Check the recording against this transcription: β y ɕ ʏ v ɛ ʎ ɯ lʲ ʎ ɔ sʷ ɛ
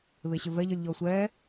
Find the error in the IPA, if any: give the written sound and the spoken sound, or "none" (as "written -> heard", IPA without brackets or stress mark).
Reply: y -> e